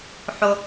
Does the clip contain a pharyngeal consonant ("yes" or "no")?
yes